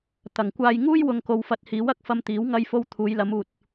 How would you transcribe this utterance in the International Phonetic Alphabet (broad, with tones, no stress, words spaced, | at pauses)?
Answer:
t̪ɐ˨˩ŋkʷaː˧j ŋuː˥jwʊ˨ŋko˨w fɐ˧t̚ hiː˨˥wɐ˨˥k̚ fɐ˧mt̪iː˨˥w ŋɐ˥jfo˥w t̪ʰuː˨˧jlɐ˨˧m uː˨t̚